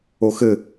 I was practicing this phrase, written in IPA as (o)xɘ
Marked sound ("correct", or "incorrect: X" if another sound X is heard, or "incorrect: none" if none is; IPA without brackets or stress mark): correct